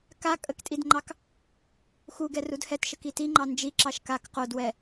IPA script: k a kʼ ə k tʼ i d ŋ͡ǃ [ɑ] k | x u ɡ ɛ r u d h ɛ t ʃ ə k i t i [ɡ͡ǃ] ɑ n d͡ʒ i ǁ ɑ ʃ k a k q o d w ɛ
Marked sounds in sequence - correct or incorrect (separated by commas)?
correct, incorrect